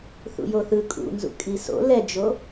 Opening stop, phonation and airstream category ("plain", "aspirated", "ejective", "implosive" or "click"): ejective